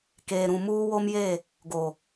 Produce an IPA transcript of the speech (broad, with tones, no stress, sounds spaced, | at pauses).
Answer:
k eː˨ ɾ ũ˨ m uː˦ w o˦ m j e˦˨ | ɡ o˨